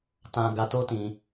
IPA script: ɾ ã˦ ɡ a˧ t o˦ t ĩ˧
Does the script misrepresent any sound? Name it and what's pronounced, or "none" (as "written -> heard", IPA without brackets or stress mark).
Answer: ɾ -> t